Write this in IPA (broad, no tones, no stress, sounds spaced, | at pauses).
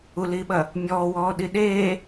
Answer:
u l iː ɓ ɐ | mʲ ɔː w ɔː ɗ i ɗ eː